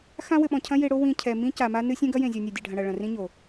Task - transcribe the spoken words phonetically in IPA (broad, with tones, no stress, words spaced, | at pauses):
xã˦wɘ˨ɓɔ̃˨cʰɐ̃˦ je˦ɽo˦ wĩ˨ cʰɛ˨ mĩ˦ca˨ma˦nɨ˦ sʲẽ˦ɡɐ˦ jẽ˨zʲɔ˨ nʲɛ˨dʲɛ˨ɖʱɐ̃˨ ɽɐ˨ɭɐ̃˨rĩ˦ɲo˨